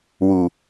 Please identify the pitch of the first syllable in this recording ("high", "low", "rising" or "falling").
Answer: low